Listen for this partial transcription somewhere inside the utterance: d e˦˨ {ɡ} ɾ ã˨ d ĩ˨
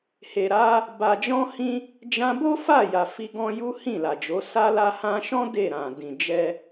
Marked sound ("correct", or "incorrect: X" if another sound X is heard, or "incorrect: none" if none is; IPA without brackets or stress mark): incorrect: none